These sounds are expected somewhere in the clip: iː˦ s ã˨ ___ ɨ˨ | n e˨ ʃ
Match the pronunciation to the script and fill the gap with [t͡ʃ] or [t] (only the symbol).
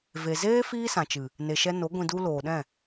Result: t͡ʃ